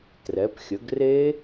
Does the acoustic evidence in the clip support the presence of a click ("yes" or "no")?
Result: no